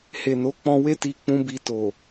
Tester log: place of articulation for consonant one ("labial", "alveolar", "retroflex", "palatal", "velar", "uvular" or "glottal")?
glottal